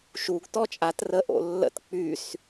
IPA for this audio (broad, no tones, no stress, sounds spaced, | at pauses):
ʃ u ɡ t ɔ t͡ʃʼ a t r ə ʔ o̰ lː ə̰ t k͡p y s